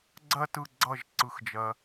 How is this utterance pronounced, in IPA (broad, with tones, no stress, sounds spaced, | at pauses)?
ɡ͡ǀ ɜ˦ t ɯ˦˨ ɡ͡ǀ ʌ˦˨ ʒ ǀ ɯ˦ x d͡ʒ ɜ˦